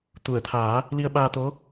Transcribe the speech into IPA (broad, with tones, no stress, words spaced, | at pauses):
t̪u˨˩˨ə̯t̪ʰaː˨˩˦ | li˧ə̯ɓaː˧t̪o˧˥